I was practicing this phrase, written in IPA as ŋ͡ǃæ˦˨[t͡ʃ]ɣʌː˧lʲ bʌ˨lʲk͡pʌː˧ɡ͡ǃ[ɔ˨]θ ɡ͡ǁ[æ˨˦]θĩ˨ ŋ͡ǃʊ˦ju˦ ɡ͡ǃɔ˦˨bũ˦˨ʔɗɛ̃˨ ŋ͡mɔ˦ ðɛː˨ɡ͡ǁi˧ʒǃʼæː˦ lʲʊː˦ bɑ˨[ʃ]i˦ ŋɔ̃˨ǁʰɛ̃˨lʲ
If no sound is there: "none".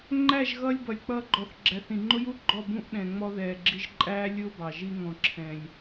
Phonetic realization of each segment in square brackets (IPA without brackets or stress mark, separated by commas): ʒ, ɔ˨, æ˨˦, ʒ